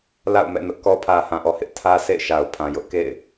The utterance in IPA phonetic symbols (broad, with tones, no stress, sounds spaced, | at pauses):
l a̰˦˨ ʊ̯ m ɛ̰˦˨ n ʊ˦ ʔ k ɔ˦ pʰ ä˨ h ã˨ ʔ ɔ˨ h ɪ˦ ʔ tʰ ä˦ sʰ ḛ˦˨ ɪ̯ ʃ a˨ ʊ̯ pʰ ã˨ j ʊ˦ ʔ k ḛ˦˨ ɪ̯